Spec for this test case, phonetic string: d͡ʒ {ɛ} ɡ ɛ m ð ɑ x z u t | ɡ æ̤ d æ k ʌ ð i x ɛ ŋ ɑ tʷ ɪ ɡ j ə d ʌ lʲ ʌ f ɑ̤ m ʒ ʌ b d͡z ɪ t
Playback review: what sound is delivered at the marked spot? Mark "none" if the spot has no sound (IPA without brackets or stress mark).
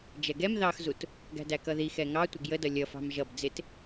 ɛ